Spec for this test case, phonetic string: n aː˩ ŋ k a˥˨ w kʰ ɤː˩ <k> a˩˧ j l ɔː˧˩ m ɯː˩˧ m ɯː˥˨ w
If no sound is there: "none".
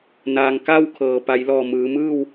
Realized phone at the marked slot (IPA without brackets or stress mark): p